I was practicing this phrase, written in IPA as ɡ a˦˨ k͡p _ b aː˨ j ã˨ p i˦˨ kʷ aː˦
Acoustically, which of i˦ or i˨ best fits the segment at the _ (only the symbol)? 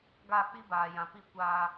i˦